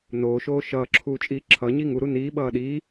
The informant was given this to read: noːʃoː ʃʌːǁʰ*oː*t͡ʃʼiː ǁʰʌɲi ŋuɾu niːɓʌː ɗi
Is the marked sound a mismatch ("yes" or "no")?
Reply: yes